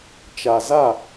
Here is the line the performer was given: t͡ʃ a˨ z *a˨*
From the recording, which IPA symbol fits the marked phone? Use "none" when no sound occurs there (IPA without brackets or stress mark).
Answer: a˦˨